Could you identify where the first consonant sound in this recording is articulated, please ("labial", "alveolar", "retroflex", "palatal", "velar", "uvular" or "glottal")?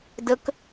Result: alveolar